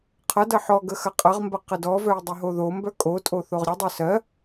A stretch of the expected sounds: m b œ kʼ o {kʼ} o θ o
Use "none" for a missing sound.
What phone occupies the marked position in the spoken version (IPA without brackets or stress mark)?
tʼ